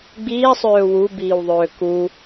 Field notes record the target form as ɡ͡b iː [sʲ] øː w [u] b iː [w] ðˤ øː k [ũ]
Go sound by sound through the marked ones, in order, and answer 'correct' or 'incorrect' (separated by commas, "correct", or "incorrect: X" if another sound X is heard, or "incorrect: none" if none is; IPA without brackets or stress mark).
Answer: incorrect: sˤ, correct, correct, incorrect: u